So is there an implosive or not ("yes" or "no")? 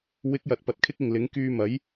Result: no